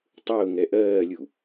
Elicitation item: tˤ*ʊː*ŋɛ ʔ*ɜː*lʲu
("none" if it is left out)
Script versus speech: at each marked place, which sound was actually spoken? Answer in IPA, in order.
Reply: ʊː, ɜː

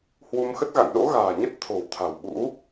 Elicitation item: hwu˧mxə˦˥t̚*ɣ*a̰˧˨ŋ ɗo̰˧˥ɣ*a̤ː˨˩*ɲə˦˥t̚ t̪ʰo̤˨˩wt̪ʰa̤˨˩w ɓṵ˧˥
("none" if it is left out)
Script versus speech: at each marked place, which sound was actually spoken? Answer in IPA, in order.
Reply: ɣ, a̤ː˨˩

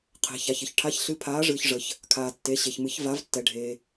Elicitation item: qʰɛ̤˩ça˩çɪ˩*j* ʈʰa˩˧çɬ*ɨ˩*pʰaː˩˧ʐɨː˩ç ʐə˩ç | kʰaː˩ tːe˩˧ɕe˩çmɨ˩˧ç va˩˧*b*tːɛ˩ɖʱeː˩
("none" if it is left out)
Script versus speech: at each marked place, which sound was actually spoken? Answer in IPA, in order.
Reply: ç, ɨ˩˧, v

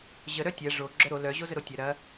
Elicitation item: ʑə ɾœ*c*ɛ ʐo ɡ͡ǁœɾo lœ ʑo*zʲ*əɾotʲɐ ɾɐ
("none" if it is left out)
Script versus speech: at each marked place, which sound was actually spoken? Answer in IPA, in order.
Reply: tʲ, z

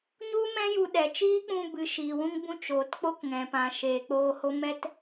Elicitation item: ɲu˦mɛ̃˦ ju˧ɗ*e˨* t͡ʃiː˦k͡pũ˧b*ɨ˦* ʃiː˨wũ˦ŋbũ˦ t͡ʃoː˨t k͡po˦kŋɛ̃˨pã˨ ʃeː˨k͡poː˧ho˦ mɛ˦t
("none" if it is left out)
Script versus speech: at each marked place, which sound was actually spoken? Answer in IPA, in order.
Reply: ɛ˨, ɨ˨

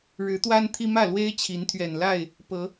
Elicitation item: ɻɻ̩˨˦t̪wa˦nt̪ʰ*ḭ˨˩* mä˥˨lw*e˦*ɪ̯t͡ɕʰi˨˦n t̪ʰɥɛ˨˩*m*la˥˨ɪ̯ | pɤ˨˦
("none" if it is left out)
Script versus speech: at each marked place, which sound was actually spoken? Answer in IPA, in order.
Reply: i˦, e˦, n

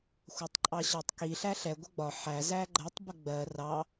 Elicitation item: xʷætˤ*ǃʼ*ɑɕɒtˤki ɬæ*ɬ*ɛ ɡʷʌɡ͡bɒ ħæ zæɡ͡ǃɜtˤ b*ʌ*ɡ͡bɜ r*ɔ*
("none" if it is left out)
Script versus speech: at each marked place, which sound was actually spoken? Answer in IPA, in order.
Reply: ǃʼ, ɬ, ə, ɑ

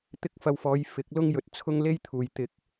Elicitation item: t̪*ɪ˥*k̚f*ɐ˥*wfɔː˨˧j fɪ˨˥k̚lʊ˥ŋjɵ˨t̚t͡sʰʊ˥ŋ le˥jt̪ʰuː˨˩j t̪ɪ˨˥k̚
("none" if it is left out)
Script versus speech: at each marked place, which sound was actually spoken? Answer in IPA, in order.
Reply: ɪ˥, ɐ˧

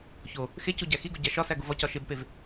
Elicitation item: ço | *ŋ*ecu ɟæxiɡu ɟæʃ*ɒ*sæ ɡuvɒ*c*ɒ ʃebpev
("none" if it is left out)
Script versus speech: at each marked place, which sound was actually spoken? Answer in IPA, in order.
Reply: x, ɒ, c

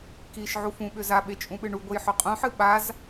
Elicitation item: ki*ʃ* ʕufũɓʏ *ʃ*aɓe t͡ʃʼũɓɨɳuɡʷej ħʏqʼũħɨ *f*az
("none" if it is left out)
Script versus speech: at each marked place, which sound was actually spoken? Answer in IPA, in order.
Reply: ʃ, z, ɓ

